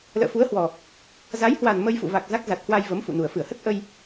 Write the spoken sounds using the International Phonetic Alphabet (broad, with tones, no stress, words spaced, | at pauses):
lə̰ː˧˨fu˨˦ə̯hwɔ˨˩ | za˨˦jhwa˨˩n mə˧jfṵ˧˨va˨˩k̚ za˦˥k̚za˨˩t̚hwa˧j və˨˦mfṵ˧˨nu˨˩ə̯ fɨ˧˩ə̯hə˦˥t̚ ʔə˧j